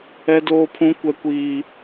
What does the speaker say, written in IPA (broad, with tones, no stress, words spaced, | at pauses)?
ɛ˦doː˦pʰũ˦ kʷɛ˦kʷiː˦